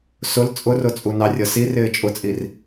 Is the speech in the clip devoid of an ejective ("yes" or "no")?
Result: no